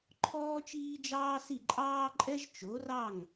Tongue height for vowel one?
mid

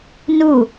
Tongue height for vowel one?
high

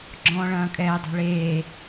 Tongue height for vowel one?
mid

